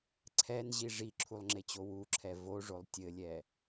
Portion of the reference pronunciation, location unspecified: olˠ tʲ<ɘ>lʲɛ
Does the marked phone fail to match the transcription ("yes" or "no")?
no